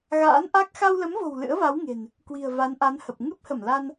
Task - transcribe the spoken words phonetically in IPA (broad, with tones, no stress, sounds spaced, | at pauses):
ɣ a̰ː˧˥ n ʔ a˦˥ k̚ x a˧ w l ə˨˦ m v o̤˨˩ w l ɨ̰˧˥ ə̯ v a˨˦ w ŋ e̤˨˩ n | k w i̤˨˩ ə̯ v a˨˦ n ʔ a˨˦ n h ə˨˩ p̚ ŋ ɨ˦˥ p̚ h ə˧˩ m l a˧ n